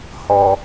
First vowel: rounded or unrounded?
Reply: rounded